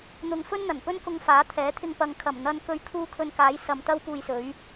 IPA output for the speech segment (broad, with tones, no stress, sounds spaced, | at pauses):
n̪ ʊ˧ ŋ f ɵ˥ n n̪ ɐ˨˩ n p ɵ˥ n k ʊ˧ ŋ f aː˨˥ t̪ʰ ɛː˨˥ t̪ʰ ɪ˧ ŋ p ɐ˨˧ ŋ kʰ ɐ˨˩ m n̪ ɐ˧ n k ɵ˧ ɥ kʰ uː˥ kʰ ɵ˧ n k aː˨˥ j s ɐ˨ m t̪ ɐ˥ w p uː˧ j s ɵ˨˥ ɥ